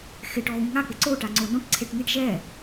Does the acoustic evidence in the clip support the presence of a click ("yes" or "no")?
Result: yes